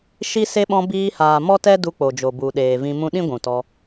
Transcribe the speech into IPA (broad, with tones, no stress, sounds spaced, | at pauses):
ʃ i˦ s e˦ ɓ ɔ̃˧ b iː˧ h aː˨ m ɔ˦ t ɛ˦ d u˧ k͡p o˨ d͡ʒ o˨ b u˨ ɗ eː˨ v ĩ˧ m ũ˧ ɗ ĩ˦ ɡʷ ũ˨ t ɔ˧